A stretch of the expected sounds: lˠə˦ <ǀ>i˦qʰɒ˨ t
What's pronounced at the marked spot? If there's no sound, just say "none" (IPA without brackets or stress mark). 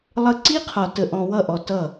ǀ